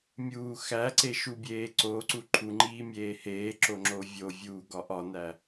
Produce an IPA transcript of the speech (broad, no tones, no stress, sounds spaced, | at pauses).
mʲ uː x æ ǀ e ʃ u bʲ eː ǀ o ǀ u ǃʰ u ŋ͡ǃ iː mʲ eː h eː ǁ o ŋ͡ǁ o vʲ o vʲ uː ɡ ɒ ʔ ɒ n æ